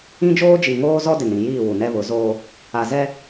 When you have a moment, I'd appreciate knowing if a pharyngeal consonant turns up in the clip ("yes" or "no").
no